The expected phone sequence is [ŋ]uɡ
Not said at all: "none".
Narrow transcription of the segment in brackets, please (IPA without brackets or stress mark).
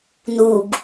n